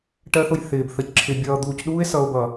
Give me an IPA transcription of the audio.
ʈ ɜ˦ θ ʊ˨ j θ ɪː˨ b θ ə˨ c ǁʰ ɪ˨ bʲ ʌː˨ d̪ uː˨ c ɗ uː˦ e̯ s ʌ˨ o̯ b ʌ˨

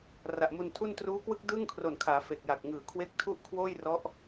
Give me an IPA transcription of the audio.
r a˨˩ ʔ m u˧ n tʰ u˥˩ n t r uː˦˥ k w ɯ˥˩ k̚ d ɯː˥˩ ŋ kʰ r o˨˩ n kʰ aː˩˦ f e˨˩ k̚ j a˨˩ k̚ ŋ ɯː˨˩ kʰ w e˦˥ k̚ tʰ u˥˩ ʔ kʰ w oː˥˩ j r ɔ˦˥ ʔ

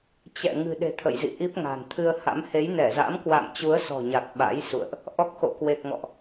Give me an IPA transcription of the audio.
t͡ɕ ɛ̰˧˨ ŋ ɨ̤˨˩ ɗ e̤˨˩ t̪ʰ ə̰˧˨ j z ḭ˧˨ ʔ i˦˥ p̚ ŋ a̤˨˩ n t̪ʰ ɨ˧ ə̯ h a̰˧˥ m h e˨˦ j n ɛ˧˩ z a̰˧˥ m k w a̰˧˨ m t͡ɕ u˨˦ ə̯ s ɔ̤˨˩ ɲ a˨˩ k̚ ɓ a̰˧˥ j s ṵ˧˨ ə̯ ʔ | ʔ ɔ˦˥ k̚ x o̰˧˨ k w e˨˩ k̚ ŋ ɔ̰˧˨ ʔ

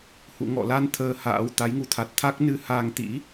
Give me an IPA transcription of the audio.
h ṵ˧˨ ŋ ɔ̰˧˨ l a˧ n t̪ʰ əː˧ h a̰ː˧˥ w t̪ a˨˦ j ŋ u˨˦ t̪ʰ a˨˩ t̚ t̪ʰ a˦˥ k̚ n ɨ˧ h aː˧ ŋ t̪ ḭ˧˥

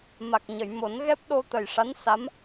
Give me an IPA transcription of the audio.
m a˨˩ k̚ ɲ ə˨˩˨ j m o˨˩˦ n ɣ ɛ˦˥ p̚ ɗ o˧ t̪ ə˨˩ j ʂ a˧˥ n s a˧˥ m

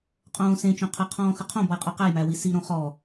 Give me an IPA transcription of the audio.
qʼ õː s ẽ t͡ʃ õ qʰ ə qʰ ɔ̃ː x ə qʰ õ b ɔ j qʼ ɒ q æ j m æ w i s i ɾ õ χ ɔ

